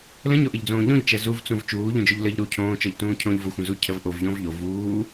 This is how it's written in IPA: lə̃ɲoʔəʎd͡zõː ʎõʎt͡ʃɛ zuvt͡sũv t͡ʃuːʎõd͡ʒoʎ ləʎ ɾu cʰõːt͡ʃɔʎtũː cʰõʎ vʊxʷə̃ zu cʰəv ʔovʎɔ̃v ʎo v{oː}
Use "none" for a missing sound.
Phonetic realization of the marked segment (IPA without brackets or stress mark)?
uː